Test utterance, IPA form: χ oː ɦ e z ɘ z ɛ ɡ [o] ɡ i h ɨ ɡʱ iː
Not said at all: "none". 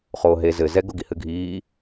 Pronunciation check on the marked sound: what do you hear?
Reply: o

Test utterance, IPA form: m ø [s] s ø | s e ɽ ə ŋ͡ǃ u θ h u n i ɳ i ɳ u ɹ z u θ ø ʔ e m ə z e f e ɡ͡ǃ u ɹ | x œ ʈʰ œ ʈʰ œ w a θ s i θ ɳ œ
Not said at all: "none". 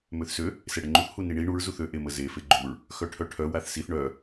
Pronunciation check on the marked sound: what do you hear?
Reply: θ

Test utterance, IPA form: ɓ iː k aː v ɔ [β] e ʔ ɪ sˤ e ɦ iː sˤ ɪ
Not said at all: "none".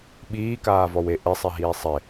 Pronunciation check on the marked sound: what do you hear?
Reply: w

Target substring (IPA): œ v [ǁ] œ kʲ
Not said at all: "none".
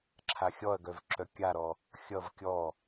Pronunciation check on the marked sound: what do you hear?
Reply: ǁ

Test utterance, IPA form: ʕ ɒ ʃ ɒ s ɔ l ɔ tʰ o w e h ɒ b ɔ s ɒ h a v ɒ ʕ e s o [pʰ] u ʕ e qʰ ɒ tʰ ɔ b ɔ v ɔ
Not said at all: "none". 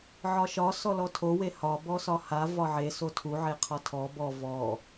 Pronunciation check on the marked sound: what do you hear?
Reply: tʰ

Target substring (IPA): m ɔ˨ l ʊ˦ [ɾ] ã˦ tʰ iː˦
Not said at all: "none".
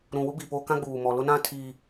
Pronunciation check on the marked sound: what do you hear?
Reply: n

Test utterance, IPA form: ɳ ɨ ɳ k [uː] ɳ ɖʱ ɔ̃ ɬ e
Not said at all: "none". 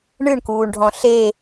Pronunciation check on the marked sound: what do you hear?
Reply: uː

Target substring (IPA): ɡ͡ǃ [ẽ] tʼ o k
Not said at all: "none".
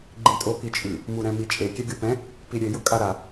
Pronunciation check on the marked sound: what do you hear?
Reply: ĩ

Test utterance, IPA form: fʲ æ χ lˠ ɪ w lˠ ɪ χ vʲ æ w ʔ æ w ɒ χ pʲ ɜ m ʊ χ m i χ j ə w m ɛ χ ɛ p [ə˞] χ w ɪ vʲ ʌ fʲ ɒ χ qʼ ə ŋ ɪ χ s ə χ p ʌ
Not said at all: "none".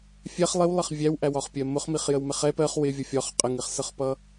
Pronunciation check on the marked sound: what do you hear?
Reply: ɜ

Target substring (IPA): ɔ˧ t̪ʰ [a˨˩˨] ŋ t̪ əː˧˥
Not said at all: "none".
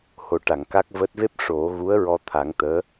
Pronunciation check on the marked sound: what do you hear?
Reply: a˨˩˦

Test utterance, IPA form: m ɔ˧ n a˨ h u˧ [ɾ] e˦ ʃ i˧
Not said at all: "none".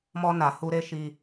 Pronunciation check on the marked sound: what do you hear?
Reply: ɾ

